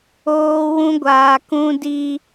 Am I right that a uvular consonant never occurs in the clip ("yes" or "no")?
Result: yes